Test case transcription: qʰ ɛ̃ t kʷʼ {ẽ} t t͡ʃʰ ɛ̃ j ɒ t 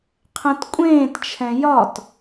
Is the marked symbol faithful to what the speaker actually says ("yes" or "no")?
no